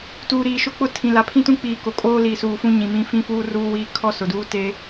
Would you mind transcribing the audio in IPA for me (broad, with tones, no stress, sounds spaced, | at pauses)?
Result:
t uː˨ ɾ iː˨ ʃ ʊ˦ k͡p ʊ˦ tʰ ĩ˨ l a˨ pʰ ĩ˦ t ũ˦ k͡p iː˨ k o˨ kʼ oː˦ l iː˨ s uː˨ f ũ˦ ɲ ĩ˨ m ĩ˦ f ĩ˦ f uː˦ r uː˦ w iː˦ kʰ ɔ˦ s ʊ˨ d uː˦ t e˦